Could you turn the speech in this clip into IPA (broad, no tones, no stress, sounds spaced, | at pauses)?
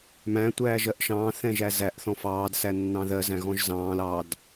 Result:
m æ̃ tʷ æː ʒ ɜ ʔ ʃ ɑ̃ː θ ɛ̃ ʒ æ z æ ʔ θ ɔ̃ f ɑː d s æ nː ɑ̃ ð ɜ z æ̃ ɣ ɔ̃ ʒ z ɑ̃ː l ɑ d